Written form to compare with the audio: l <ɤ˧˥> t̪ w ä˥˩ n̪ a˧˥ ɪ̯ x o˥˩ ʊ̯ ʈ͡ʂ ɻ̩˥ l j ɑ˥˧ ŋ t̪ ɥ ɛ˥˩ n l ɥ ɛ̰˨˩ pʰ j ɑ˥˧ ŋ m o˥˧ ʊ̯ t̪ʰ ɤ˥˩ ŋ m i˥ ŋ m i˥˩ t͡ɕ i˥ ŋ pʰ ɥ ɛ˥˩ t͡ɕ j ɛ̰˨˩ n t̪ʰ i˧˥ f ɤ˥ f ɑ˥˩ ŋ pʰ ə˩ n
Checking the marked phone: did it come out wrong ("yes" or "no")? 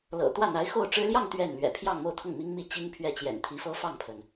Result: yes